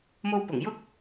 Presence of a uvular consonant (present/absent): absent